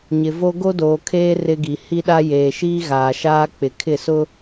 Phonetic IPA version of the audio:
ɲ ɪ˨ v o˦ ɡ o˦ d oː˨ kʰ eː˦ r ɪ˦ ɡ i˨ h i˦ ɗ a˦ j eː˨ ʃ iː˦ ɣ aː˨ ʃ aː˦ k͡p ɪ˨ kʰ ɪ˦˨ s ʊ˦

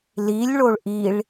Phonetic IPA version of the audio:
l i lʲ ɭ o ɭ ʔ i ɭ

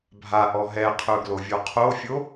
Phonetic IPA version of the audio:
bʱ a ʔ ɔ ɦ ɛ qʰ ɵ ɡ l o vʲ ɔ qʰ o fʲ o

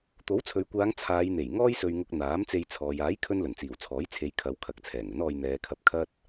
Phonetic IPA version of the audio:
t̪ o˨˥ w t͡sʰ ɵ˨ ɥ kʷ aː˨˧ ŋ t͡sʰ aː˨˧ j n̪ e˨˩ j ŋ ɔː˥ j s ɵ˧ ɥ ŋ ʊ˧ k̚ n̪ aː˨˥ m t͡s e˧ j t͡sʰ ɔː˨ j aː˨˥ j kʰ ɵ˧ n l ɵ˨˩ n t͡s iː˨˩ w t͡sʰ ɔː˨˥ j t͡sʰ e˨˧ j kʰ ɐ˨˧ w kʰ ɐ˨˥ k̚ t͡sʰ ɛː˨˩ ŋ ɵ˨˥ n ɔː˧ j n̪ ɛː˨˧ kʰ ɐ˧ p̚ kʰ ɐ˥ t̚

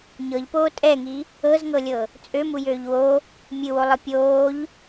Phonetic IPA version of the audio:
ɲ ɤ ʎ p oː tʼ ɛ ŋ i | ɤ z ŋ ɤ lʲ ɤ | t͡sʼ ø m u j øː ʎ w o | mʲ ɨ w o lˠ ɨ pʲ oː ʎ

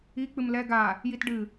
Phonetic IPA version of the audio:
i k͡p ɨ m l ɛ ɡ a | j i t ɖ ɨ

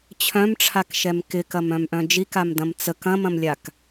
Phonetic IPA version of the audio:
t͡ɕʰ œ̃ m ʈ͡ʂʰ a k ʃ ɛ m k ɪ k ɐ m œ̃ m ʔ œ̃ d͡ʒ i k a m d ɐ̃ m t͡s ə k ɐ̃ m ɐ̃ m lʲ a k

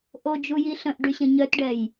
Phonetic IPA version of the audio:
ʔ o d͡ʒ u j i ɬ ə̃ ʔ ɖ y ɕ ə̃ ɲ œ t ɖ ɛ j

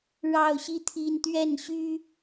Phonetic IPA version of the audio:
ɻ ɑ˥˧ ʊ̯ ɕ i˥˩ t̪ʰ i˥ n t̪ ɥ ɛ˥˩ n ɕ y˥

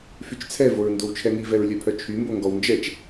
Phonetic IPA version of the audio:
f y t͡ʃ t͡sʰ ɛ v o ɹ n d o w t͡ʃʰ ɛ ŋ i v ɛ ɹ lʲ œ pʰ œ t͡ʃʰ y m b o ŋ ɡ ɔ w n d͡ʒ ɛ t͡ʃ

